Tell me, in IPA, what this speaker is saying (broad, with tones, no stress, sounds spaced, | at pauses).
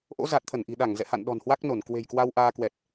ʔ o̰˧˥ z a˨˩ t̚ t̪ʰ ə˧˩ n ʔ i̤˨˩ ɗ a˧˩ ŋ z ɛ̰˧˨ h a̰˧˨ n ɗ ɔ̤˨˩ n h w a˦˥ k̚ n o˧˩ n k w e̤˨˩ j k w a˧ w ʔ aː˧ k w ɛ˨˩ t̚